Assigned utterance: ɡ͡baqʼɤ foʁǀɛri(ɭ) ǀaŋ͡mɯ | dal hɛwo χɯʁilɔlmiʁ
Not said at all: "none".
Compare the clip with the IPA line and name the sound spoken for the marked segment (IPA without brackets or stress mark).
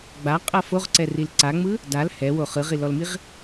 l